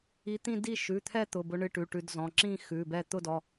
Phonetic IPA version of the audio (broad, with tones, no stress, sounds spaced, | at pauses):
i˨˦ t̪ ĩ˥˧ d i˥˧ ʃ ʉ˩˧˩ t̪ʰ ɛ˥˧ t̪ ʊ˩˧˩ b ʊ˨˦ ɳ ɨ˩˧˩ ʈ ʉ˩˧˩ ʈ ʉ˨˦ d z ɔ̃˩˧˩ ǁ ĩ˥˧ x ʉ˩˧˩ b ɛ˥˧ t̪ ʊ˥˧ d ɔ˩˧˩